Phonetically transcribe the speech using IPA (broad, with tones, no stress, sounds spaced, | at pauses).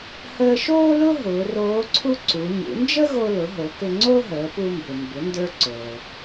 h əː˧ ʃ oː˥ l ʊ˥ ɦ ʊː˩˧ r oː˧˥ ǀʰ u˥ ǀ u˩˧ ɲ ṵ˩˧ n d͡ʒ ə˥ ɣ o˧ l ʊ˩˧ ɦ o˩˧ k ʏ˧ ŋ͡ǀ o˥ ɦ əː˩˧ p u˧ m b ʏ˩ m b ʏ˩˧ n d ə˞˧ ǀ o˩